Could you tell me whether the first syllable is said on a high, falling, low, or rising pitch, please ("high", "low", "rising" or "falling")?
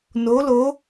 rising